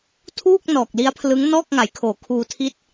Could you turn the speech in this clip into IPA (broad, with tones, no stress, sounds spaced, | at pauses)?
tʰ uː˥˩ k̚ n ɔː˨˩ k̚ l i˦˥ a̯ pʰ l ɯ˦˥ ŋ n ɔː˥˩ k̚ ŋ a˩˦ j kʰ oː˩˦ kʰ uː˧ tʰ i˥˩ t̚